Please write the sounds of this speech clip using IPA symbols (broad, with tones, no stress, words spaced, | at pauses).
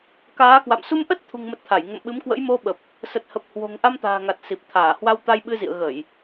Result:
kaː˨˦kwa̰˧˨m su˧mʔə˦˥t̚t̪ʰṳ˨˩ŋmə˨˩t̚ t̪ʰa˧˩jŋə̰˧˨mɓɨ˨˦mkwə̰˧˥j mo˧ɓə˨˩p̚ | sə˨˩t̚hə˨˩p̚hwo̤˨˩ŋ ʔa˧mt̪a̤ː˨˩ŋa˨˩t̚ si˨˩p̚ t̪ʰaː˧˩hwa˧wt̪a˧j ɓɨ˧zḭ˧˨ə̯ ɣə˧˩˨j